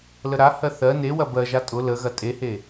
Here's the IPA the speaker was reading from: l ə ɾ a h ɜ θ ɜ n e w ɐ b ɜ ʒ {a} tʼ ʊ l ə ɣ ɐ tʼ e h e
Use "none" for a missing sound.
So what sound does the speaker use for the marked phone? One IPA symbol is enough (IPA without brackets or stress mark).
a